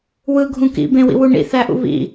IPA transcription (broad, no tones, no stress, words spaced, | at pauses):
wɯ ɡʱũkḭ bẽwḭwuɳḭ θæʔṵβḭ